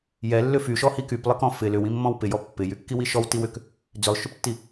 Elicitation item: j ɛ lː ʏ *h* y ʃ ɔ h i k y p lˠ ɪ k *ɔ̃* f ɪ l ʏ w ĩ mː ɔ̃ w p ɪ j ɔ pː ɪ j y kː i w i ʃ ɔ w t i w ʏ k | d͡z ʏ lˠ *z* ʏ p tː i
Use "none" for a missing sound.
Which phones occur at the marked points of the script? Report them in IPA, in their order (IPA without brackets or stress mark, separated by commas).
f, ɔ̃, ʃ